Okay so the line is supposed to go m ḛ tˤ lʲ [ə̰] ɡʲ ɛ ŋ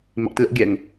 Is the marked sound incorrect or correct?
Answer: correct